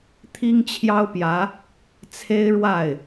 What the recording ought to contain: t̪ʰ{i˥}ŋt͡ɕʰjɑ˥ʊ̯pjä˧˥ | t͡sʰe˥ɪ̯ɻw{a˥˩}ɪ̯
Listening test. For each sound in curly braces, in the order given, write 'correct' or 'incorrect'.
correct, correct

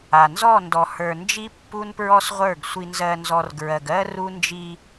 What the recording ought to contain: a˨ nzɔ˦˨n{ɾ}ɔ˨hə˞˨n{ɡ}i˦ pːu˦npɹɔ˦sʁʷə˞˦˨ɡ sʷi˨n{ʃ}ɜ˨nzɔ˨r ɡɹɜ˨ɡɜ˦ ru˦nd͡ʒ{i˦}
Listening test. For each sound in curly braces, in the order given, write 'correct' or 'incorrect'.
incorrect: d, incorrect: d͡ʒ, incorrect: z, correct

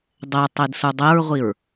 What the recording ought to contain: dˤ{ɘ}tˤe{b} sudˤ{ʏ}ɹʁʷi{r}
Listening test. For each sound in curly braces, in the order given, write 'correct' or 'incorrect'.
incorrect: ɛ, incorrect: d, incorrect: ɛ, incorrect: ɹ

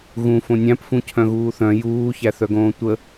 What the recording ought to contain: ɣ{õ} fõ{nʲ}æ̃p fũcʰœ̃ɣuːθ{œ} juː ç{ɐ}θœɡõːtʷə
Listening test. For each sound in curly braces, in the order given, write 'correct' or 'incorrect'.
incorrect: ũ, correct, incorrect: œ̃, incorrect: æ

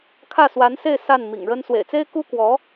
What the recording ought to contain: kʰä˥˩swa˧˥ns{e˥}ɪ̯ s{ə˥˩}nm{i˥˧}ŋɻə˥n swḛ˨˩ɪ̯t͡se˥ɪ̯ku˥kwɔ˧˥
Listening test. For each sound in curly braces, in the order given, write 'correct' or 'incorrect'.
incorrect: e˥˧, incorrect: a˥˩, incorrect: ḭ˨˩

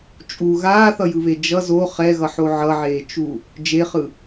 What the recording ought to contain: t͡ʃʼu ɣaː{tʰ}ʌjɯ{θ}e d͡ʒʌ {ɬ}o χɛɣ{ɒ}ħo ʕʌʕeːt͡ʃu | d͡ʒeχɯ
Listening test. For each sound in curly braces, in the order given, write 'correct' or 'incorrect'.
incorrect: θ, incorrect: β, incorrect: z, incorrect: ʌ

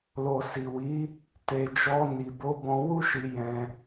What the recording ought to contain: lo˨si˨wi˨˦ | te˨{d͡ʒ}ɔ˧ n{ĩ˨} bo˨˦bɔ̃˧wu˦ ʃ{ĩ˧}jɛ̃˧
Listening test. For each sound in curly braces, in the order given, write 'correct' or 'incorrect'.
correct, incorrect: i˨, incorrect: i˧

